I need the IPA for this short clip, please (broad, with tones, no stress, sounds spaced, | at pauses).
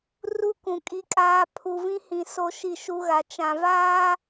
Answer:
r u˦ k ũ˨ kʼ i˦ kʼ aː˦ pʰ u˨ v ĩ˦ h ĩ˨ s o˦ ʃ i˦˨ ʃ u˦ ɣ a˨ t͡ʃ ã˨ v aː˦